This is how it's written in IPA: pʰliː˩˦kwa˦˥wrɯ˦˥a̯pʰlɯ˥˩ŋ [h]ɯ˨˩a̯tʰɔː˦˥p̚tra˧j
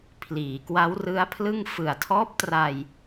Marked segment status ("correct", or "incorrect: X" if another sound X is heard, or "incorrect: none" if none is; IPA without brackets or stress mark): incorrect: f